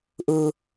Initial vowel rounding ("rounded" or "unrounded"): rounded